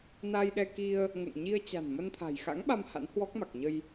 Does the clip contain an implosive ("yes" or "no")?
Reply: yes